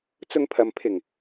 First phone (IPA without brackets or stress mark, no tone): t͡s